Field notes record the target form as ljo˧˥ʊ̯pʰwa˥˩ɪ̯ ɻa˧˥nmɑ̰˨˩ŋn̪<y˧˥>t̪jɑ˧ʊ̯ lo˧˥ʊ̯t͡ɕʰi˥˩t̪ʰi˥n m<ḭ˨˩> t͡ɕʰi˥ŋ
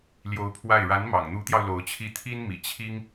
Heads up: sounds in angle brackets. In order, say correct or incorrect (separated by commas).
incorrect, correct